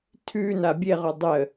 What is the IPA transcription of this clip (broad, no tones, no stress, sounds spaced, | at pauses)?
tʰ ʉː n a bʲ e ʁ o dˤ ə